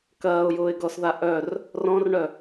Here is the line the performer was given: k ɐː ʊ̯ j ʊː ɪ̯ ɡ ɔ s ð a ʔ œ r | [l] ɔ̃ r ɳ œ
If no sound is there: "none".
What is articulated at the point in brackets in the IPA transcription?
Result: r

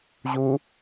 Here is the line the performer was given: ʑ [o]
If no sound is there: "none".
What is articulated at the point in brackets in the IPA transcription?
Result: u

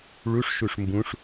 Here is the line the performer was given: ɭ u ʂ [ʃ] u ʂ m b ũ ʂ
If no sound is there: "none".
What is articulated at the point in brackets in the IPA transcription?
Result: ʃ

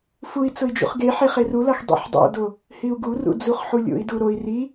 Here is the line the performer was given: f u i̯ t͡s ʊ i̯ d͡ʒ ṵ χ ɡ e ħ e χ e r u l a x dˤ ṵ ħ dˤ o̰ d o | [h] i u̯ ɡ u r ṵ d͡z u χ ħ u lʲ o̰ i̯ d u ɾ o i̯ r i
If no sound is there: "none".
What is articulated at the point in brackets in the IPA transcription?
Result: h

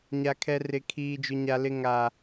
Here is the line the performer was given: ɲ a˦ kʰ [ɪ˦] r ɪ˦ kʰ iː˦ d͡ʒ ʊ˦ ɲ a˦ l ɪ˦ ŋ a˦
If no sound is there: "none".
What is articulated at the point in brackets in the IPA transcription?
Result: ɛ˦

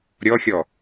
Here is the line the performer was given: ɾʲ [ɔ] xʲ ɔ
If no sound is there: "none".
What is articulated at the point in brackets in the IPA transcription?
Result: ɔ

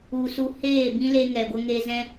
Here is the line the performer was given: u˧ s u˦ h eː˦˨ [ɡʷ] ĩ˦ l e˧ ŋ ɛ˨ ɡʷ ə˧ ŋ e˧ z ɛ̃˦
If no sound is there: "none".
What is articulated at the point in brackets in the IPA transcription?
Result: b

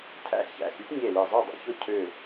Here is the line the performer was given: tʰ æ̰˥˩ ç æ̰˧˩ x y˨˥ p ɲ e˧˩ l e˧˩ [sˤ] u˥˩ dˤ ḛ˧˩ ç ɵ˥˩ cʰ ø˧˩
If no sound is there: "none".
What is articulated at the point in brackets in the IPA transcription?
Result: zˤ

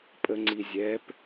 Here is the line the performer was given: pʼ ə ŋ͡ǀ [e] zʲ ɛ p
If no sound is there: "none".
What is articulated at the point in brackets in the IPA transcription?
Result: i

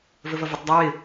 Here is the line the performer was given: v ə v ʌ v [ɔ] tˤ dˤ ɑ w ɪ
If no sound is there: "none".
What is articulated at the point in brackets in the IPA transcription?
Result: ə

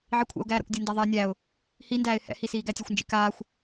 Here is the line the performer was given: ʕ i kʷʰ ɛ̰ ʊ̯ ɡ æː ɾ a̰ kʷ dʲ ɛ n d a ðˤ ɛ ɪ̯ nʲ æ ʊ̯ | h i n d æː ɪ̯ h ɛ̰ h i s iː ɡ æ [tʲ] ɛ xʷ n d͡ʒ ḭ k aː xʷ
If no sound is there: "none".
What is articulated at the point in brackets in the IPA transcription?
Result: tʲ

